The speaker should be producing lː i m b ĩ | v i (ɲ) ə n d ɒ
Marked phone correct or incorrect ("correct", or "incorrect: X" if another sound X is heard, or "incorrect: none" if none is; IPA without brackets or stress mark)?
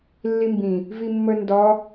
incorrect: mː